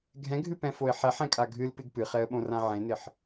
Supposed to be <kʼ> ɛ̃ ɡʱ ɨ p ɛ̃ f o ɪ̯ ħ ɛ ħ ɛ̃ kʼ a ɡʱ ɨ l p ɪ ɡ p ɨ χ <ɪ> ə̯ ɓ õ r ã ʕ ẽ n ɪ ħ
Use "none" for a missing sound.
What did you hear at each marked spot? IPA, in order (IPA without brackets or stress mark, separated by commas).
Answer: ɡʱ, ɛ